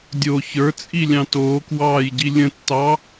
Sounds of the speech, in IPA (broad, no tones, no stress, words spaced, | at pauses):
dʲo çə˞t͡sʼilʲɑ̃ toːkwɑːjɟi lʲə̃tːɑ